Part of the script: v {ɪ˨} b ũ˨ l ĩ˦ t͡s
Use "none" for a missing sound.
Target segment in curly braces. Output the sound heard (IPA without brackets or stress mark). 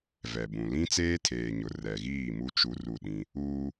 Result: ɛ˨